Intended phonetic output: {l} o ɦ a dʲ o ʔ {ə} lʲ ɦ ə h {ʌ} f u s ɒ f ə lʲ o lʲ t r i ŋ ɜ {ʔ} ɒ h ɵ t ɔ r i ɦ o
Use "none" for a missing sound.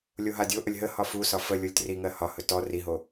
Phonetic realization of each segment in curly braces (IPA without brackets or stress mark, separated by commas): lʲ, ə, ɒ, h